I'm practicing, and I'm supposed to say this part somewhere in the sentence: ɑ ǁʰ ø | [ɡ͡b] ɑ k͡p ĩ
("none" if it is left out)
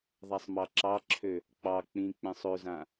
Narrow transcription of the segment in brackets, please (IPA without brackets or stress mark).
k͡p